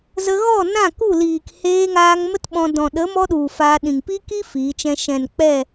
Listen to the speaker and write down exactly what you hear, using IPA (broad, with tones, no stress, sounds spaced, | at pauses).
z ə˧ ɣ ɔ˦˨ n ã˦˨ k u˦˨ l iː˨ k h eː˧ ŋ aː˧ ŋ m ə˦ t ɓ ɔ̃˧ d ɔ̃˨ ɗ ə˨˦ m ɔ˦ ɗ u˨ f aː˧ ɗ ĩ˨ ŋ p i˦ k i˦ f iː˨˦ t͡ʃ ɛ̃˦ ʃ ɛ̃˨ n k͡p ɛ˦˨